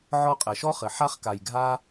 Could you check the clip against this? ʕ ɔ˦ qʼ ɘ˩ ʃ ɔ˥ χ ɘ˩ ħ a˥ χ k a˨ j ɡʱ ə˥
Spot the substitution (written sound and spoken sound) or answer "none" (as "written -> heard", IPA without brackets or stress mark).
ə˥ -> a˥